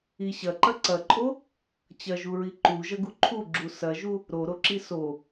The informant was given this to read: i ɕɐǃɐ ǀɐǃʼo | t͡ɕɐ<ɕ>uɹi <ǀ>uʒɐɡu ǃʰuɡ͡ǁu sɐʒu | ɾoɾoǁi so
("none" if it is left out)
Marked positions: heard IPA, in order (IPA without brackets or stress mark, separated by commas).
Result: ʒ, ǃ